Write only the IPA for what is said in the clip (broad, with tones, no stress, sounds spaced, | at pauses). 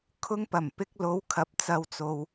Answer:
kʰ ʊ˧ ŋ p ɐ˨˩ m p ɪ˧ k̚ l o˨˧ w kʰ ɐ˨˥ p̚ t͡s ɐ˨ w t͡s o˨ w